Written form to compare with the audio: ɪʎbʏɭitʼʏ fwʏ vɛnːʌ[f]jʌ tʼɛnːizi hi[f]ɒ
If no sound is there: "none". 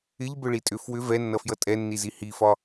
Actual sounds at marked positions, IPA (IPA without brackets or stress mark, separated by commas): f, f